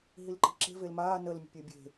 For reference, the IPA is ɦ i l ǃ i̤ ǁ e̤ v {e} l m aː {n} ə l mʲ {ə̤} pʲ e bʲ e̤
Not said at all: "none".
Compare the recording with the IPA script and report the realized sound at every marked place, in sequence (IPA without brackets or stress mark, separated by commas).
e, n, ə̤